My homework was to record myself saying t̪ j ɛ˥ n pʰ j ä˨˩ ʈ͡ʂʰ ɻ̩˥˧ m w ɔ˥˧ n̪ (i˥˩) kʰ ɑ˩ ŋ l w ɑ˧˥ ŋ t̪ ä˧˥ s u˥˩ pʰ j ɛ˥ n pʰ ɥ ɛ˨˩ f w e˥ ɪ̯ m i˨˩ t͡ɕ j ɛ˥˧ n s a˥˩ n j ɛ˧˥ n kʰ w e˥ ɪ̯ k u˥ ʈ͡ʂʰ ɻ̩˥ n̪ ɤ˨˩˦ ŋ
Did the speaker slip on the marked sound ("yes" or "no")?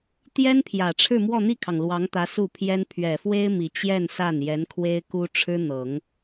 no